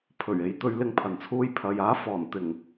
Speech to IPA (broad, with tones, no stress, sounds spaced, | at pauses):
pʰ ɵ˨˩ ɥ e˨ j t̪ ɵ˧ ɥ l ɪ˧ ŋ pʰ ɐ˨˩ n t͡sʰ uː˧ j pʰ ɐ˨ j aː˨˥ f ɔː˨˩ n t̪ ɪ˨˩ ŋ